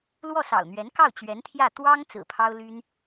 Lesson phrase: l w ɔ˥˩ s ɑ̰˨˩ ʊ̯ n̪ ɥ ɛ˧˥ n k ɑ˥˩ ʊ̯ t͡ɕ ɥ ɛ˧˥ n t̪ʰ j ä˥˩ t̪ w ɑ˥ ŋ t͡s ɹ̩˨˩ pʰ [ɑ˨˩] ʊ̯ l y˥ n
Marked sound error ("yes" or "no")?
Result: yes